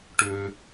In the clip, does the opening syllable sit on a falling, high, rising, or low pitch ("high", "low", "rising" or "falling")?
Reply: low